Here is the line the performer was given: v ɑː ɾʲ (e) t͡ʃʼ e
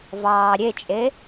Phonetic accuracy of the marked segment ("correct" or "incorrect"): correct